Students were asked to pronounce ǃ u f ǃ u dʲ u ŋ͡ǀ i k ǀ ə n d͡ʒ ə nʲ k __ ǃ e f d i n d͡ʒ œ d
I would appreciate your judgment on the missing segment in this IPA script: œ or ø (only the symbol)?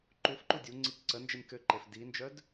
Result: ø